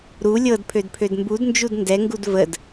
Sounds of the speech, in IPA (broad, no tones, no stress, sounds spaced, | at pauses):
ɾ u lʲ ɤ d pʰ ø d pʰ ø d m b u d n d͡ʒ u d n d ɛ ŋ ɡ u d v ə d